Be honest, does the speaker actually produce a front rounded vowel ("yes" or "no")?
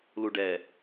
no